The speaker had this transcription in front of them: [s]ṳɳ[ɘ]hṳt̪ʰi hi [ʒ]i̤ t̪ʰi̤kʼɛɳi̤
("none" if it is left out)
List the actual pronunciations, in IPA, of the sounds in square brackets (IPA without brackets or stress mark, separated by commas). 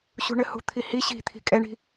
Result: ɕ, ɘ, ɕ